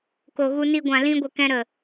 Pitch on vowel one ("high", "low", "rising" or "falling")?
low